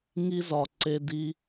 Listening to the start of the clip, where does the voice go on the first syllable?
high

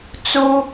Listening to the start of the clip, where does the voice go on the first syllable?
high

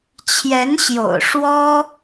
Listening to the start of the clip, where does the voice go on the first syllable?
rising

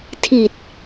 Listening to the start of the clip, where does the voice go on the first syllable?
low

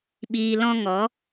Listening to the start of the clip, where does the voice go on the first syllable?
low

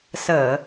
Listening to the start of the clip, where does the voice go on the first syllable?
low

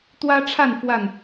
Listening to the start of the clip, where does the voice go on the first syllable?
high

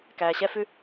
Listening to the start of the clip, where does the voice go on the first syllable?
low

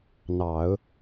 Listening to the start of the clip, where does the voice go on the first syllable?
low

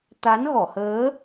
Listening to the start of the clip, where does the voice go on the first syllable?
rising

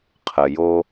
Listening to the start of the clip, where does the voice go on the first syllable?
low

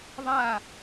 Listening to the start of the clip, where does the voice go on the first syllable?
falling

